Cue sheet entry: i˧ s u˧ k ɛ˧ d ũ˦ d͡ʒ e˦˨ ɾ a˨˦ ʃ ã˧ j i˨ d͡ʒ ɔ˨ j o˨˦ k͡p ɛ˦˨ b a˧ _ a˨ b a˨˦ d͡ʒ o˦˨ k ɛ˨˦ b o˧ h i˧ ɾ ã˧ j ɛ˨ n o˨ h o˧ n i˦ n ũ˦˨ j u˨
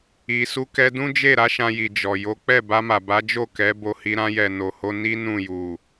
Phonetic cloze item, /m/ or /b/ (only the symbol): m